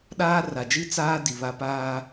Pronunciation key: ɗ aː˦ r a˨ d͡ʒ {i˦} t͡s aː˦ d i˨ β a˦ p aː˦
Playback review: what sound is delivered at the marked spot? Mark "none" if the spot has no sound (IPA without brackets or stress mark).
i˦